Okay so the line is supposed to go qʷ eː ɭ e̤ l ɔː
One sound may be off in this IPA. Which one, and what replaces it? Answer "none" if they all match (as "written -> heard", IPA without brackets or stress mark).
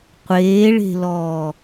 none